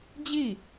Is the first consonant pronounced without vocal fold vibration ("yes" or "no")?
no